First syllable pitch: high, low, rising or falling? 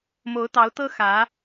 rising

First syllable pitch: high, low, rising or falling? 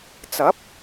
rising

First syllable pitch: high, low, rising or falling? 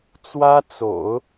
high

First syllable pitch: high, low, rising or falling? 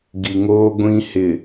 low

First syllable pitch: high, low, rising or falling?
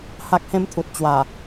high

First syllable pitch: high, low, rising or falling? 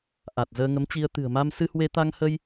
low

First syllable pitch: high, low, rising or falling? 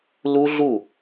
high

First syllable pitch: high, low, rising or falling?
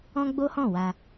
high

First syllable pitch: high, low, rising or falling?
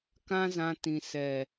high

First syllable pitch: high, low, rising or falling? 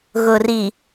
low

